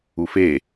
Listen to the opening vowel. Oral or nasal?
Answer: oral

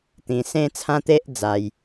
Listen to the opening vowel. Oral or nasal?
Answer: nasal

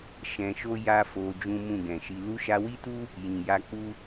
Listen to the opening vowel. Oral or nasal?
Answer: nasal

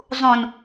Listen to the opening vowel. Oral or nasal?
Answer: nasal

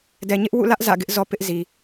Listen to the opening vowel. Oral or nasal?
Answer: oral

